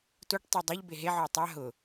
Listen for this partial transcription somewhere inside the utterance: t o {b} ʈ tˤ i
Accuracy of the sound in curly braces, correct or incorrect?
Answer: incorrect